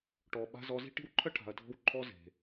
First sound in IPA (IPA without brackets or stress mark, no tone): ʈ